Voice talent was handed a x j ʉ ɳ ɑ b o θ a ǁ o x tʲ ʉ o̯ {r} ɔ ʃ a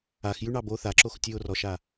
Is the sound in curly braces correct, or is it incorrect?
correct